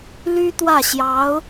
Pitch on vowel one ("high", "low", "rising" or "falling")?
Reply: high